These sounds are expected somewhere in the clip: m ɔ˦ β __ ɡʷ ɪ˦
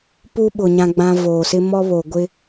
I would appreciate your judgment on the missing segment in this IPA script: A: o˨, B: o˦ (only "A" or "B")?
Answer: A